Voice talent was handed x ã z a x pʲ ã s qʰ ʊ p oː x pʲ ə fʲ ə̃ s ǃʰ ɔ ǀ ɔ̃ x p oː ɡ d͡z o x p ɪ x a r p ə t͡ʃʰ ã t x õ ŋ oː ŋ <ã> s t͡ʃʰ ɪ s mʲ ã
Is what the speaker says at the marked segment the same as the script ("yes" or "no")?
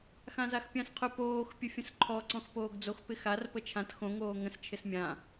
no